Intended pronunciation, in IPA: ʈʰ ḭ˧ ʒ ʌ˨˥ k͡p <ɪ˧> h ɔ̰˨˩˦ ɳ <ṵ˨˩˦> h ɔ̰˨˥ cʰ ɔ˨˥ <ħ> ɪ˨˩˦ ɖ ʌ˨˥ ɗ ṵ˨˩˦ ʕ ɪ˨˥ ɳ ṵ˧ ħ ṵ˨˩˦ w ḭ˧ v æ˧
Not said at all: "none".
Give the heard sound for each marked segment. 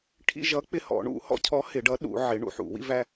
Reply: ɪ˧, ṵ˨˩˦, h

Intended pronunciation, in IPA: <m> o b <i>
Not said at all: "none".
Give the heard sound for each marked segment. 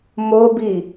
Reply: m, i

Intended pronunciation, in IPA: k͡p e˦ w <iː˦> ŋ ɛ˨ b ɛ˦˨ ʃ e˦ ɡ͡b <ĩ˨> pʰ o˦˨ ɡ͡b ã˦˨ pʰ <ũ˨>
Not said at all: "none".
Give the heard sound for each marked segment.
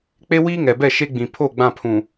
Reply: iː˦, ĩ˨, ũ˨

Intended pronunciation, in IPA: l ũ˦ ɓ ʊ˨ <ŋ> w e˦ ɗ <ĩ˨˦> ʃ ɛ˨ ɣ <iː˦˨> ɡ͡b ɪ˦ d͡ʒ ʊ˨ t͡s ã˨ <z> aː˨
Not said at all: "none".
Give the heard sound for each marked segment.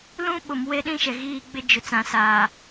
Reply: m, ĩ˦, iː˦˨, s

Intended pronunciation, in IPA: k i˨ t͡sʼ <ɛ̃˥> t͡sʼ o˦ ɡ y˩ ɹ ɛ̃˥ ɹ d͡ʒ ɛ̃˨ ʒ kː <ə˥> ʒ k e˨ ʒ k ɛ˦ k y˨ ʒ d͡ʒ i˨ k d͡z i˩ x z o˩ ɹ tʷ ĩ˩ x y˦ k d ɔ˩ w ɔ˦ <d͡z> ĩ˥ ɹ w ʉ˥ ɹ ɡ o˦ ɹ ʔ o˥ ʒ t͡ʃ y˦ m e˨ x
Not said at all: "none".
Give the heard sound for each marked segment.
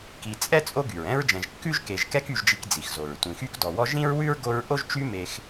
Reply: ɛ˥, ʉ˥, ʒ

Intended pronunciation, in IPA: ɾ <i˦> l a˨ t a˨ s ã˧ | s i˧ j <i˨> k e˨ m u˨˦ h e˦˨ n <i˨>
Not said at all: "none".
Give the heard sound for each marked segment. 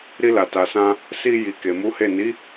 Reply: i˧, i˨, i˨˦

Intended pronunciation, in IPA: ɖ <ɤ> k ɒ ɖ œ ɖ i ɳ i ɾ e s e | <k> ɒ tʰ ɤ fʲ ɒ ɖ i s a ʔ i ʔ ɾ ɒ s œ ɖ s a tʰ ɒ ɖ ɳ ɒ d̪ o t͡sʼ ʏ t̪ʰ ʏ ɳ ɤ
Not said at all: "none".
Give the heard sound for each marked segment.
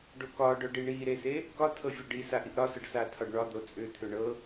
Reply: o, k

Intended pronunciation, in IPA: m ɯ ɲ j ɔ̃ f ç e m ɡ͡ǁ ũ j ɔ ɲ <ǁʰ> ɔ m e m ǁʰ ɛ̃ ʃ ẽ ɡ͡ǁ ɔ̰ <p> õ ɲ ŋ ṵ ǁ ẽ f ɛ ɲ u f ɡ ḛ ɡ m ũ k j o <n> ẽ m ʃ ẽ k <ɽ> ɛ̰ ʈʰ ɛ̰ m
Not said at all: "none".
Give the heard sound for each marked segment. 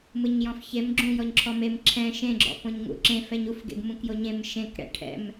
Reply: ǁʰ, p, ɲ, ɽ

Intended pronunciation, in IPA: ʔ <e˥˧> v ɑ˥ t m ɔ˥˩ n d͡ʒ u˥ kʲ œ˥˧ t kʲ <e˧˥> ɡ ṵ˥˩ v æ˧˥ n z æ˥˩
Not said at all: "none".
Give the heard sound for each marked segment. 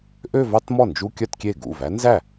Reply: ø˥˧, e˥˩

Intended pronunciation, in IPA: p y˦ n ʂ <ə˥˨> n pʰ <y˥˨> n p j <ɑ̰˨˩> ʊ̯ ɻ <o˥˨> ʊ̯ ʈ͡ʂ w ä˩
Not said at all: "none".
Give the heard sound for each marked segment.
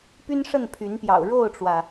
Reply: ə˥˨, y˨˦, ɑ̰˨˩, o˥˨

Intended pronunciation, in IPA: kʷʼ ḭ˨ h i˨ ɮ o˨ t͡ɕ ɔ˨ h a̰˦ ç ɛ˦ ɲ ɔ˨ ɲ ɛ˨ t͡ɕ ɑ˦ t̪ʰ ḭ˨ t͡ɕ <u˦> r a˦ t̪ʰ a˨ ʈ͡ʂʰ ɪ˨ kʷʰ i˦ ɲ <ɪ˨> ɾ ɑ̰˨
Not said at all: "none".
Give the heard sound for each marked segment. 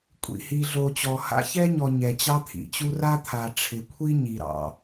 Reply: u˦, i˨

